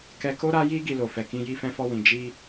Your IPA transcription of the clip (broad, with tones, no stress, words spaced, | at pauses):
kɛ˧ko˦ ɾa˦ji˦ ɡi˧lo˨fɛ˨kĩ˧ ji˧fɛ̃˧fɔ˧wĩ˨ d͡ʒi˧